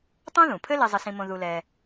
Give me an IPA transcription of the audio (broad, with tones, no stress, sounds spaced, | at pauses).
tˤ õ˥ ð ũ˩ pʰ ɘ˥ l e˥ zˤ ɘ˥ s ĩ˥ m õ˥ ð u˥ l ɛ˥